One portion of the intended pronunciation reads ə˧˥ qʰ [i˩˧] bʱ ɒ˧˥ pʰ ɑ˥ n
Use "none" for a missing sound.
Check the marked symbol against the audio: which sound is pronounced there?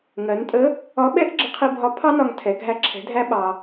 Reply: i˧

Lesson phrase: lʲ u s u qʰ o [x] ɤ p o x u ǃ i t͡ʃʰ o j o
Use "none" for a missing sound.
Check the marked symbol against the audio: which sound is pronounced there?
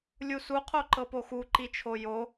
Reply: ǃ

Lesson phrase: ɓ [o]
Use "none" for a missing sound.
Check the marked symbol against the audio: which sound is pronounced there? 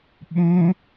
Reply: õ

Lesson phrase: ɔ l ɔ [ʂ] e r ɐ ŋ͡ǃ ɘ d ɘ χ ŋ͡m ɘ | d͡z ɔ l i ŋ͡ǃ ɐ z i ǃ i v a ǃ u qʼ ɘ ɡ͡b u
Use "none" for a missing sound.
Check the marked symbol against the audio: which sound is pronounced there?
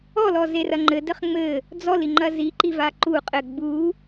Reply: z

